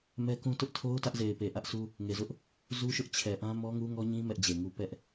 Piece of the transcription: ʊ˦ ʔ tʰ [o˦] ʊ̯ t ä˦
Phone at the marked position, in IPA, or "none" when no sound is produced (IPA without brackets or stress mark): o˦